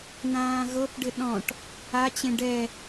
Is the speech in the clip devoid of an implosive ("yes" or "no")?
no